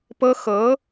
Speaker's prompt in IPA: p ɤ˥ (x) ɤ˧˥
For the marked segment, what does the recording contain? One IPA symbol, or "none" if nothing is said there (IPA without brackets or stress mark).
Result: x